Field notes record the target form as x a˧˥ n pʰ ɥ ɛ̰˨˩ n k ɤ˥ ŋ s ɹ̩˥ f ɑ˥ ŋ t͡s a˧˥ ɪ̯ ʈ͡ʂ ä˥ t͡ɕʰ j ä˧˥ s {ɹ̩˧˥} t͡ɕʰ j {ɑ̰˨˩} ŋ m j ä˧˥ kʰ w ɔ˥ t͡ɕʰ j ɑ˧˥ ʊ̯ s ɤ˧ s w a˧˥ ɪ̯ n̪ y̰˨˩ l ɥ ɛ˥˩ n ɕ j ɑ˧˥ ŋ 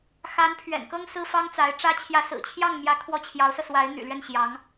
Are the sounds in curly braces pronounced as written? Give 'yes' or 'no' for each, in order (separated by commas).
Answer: no, no